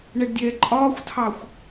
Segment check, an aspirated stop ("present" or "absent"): present